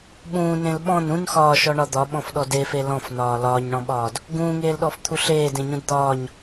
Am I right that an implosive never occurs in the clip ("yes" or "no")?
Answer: no